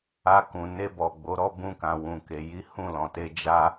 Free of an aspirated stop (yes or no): yes